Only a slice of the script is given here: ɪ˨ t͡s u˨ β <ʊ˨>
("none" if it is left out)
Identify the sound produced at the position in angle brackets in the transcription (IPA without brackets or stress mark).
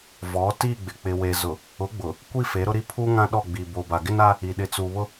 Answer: ʊ˦